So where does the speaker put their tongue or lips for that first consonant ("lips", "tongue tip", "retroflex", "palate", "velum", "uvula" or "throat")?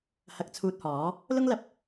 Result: throat